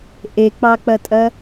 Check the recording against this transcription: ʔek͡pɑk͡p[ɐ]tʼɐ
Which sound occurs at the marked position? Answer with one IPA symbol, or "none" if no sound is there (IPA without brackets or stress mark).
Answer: ɐ